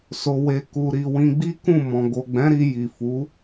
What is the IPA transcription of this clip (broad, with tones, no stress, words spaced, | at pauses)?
so˨we˨ ku˨ɾi˨ wĩ˧ɡ͡bi˦kũ˦˨ mɔ̃˨ ɡo˨ɡ͡bɛ̃˨˦ɾi˧ ji˨fu˨˦